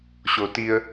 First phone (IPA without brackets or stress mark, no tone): ɕ